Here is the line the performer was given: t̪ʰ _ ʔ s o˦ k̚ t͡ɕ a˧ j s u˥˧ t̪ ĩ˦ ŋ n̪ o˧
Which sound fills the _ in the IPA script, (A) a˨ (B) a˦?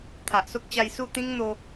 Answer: A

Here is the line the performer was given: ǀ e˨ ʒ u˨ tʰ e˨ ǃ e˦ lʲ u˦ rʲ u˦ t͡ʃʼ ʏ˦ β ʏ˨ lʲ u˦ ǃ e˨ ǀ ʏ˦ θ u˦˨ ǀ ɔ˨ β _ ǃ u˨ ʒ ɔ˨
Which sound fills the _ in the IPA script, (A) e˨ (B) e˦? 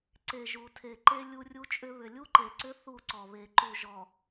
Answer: A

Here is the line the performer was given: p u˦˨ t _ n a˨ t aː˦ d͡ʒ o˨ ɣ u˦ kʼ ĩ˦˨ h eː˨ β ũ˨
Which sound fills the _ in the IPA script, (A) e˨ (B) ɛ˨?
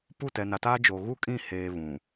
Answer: B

